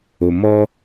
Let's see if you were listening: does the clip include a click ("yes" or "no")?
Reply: no